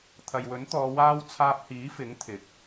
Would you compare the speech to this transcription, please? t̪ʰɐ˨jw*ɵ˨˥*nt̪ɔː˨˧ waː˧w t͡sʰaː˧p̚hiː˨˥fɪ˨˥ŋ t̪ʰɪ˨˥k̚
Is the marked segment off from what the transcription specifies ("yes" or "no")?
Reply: no